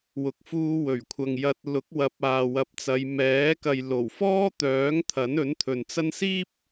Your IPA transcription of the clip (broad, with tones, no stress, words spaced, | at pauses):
wʊ˨k̚fuː˧wɵ˨˩ɥkʷʰɐ˨ŋ jɐ˨t̚ lʊ˨˥k̚wɐ˨˥p̚ aː˨wɐ˨p̚t͡sɐ˨˧j mɛː˨˥ kɐ˨jlo˨˩w fɔː˥t̪œː˨˥ŋ t̪ʰɐ˨˥nɵ˨˥nt̪ʰɵ˨nt͡sɐ˥n siː˥p̚